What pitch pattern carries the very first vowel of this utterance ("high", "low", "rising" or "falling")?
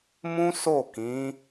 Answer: high